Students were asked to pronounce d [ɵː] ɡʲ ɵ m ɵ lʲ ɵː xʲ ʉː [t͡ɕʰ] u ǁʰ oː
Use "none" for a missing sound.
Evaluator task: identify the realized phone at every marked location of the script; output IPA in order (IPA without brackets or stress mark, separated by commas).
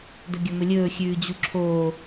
ɵ, d͡ʑ